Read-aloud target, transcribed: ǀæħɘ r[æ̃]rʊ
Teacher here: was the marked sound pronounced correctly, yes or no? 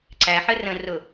no